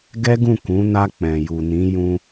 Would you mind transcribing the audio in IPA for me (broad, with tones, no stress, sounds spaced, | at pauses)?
ɡ ɛ˦ ɡ ũ˦˨ k ũ˨˦ n a˧ k͡p ɛ̃˨ j u˨ n ĩ˨˦ j ũ˧